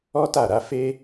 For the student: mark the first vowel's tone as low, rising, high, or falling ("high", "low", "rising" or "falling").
high